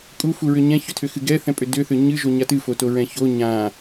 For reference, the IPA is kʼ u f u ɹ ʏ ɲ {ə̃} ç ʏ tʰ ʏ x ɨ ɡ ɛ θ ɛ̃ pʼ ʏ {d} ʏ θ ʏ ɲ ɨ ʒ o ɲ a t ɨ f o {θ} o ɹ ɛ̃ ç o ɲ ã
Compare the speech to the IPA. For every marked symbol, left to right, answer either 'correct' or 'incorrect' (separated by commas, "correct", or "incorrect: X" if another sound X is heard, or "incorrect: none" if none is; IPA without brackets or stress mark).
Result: incorrect: ɛ̃, correct, incorrect: t